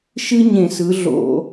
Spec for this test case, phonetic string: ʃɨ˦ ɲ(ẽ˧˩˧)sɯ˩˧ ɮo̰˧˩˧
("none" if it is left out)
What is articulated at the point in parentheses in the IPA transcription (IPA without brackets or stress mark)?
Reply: ẽ˧˩˧